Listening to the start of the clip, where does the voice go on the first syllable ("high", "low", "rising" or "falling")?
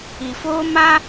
low